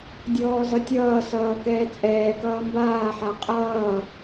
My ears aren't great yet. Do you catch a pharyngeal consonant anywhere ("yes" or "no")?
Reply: yes